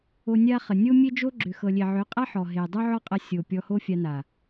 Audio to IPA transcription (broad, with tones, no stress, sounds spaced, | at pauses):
o˧ nʲ a˦ χ ə˨ nʲ o˦ mʲ e˦ d͡ʒ o˦ ɡ͡ǁ ʏ˨ x ɤ˨ lʲ e˨ ʕ ʏ˨˦ qʼ a˦ ħ ɔ˨ ɦ e˨ dˤ o˦ ʕ ɔ˦ qʼ ɐ˧ sʲ o˨ pʲ ɔ˧ h o˦ fʲ a˧ n a˨